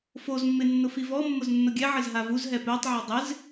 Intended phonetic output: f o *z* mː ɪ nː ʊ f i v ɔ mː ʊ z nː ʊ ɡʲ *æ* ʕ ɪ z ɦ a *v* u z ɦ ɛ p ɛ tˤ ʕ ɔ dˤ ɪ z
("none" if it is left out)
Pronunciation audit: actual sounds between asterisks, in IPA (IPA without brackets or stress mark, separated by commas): z, ɛ, v